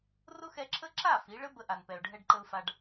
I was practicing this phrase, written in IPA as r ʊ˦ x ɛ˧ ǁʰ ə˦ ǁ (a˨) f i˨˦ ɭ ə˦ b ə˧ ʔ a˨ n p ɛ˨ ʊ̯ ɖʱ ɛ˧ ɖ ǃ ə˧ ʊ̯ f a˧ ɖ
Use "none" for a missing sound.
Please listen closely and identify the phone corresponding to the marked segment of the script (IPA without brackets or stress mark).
a˦˨